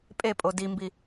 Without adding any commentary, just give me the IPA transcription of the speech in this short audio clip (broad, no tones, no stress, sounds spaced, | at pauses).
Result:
pʼ e pʼ o d i m b i